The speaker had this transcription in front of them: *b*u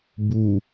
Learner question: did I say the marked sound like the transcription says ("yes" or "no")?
yes